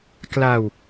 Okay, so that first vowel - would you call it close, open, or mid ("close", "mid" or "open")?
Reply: open